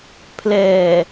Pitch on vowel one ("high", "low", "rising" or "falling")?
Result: low